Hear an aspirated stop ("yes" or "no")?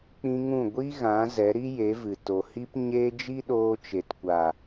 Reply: no